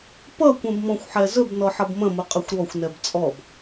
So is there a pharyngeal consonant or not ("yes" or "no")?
yes